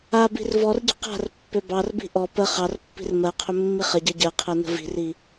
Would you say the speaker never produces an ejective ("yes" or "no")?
yes